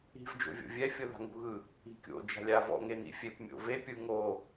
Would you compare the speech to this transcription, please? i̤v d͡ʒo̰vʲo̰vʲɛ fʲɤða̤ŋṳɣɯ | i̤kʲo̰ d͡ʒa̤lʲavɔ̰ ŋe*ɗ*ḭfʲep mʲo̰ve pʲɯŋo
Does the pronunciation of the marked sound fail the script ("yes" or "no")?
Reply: yes